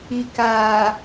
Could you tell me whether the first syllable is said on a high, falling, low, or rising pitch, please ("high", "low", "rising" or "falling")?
low